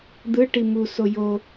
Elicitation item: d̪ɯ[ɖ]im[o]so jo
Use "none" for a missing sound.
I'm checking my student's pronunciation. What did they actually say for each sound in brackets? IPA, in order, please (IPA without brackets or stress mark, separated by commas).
ʈ, u